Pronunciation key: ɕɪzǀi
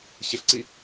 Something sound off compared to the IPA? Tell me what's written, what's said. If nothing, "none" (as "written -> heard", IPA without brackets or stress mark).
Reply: z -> ɬ